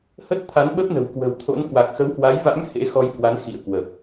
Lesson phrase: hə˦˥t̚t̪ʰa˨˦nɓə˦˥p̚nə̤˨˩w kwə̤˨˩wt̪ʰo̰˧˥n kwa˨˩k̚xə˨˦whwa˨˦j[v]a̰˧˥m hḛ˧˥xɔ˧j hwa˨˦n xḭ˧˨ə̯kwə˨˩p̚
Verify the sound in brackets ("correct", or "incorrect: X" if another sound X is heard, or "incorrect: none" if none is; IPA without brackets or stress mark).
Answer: correct